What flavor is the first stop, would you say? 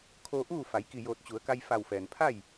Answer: aspirated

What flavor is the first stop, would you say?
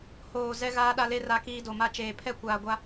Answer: implosive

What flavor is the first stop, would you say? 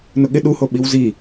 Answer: implosive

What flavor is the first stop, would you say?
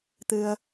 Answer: plain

